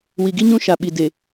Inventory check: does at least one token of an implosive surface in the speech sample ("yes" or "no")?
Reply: yes